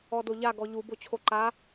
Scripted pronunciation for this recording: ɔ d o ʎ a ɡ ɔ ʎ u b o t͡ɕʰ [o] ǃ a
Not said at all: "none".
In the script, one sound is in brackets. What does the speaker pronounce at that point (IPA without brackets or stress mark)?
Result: o